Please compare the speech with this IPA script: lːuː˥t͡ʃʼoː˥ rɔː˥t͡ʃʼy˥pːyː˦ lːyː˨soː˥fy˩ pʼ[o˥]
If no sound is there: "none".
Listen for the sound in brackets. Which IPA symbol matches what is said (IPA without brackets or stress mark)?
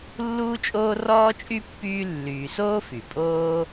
oː˥